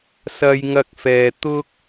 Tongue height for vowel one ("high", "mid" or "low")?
low